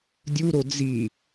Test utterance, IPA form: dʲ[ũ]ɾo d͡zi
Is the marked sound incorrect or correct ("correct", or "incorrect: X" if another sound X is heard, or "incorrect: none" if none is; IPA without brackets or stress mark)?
incorrect: u